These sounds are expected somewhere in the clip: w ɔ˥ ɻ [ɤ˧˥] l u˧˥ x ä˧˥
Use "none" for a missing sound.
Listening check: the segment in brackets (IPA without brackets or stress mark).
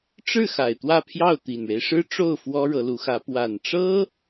ɤ˧˥